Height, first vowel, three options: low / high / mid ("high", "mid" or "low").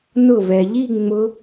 high